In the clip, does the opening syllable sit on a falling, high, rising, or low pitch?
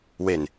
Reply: low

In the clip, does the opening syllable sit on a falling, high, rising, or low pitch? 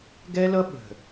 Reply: high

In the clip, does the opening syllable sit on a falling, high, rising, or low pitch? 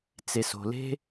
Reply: low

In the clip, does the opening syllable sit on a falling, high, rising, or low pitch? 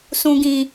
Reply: low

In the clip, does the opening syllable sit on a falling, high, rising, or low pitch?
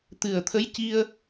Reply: low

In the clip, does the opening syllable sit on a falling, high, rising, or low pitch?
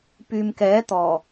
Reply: low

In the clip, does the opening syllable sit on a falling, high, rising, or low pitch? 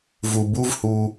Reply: low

